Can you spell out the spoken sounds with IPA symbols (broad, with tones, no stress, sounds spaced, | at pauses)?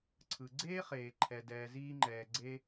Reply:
ǀʰ ɯ˩ ɡ͡ǀ eː˥ χ eː˩ ǃʰ ɛ˩ d ɛː˩ z iː˥ ŋ͡ǃ ɛː˩ ɡ͡ǀ e˥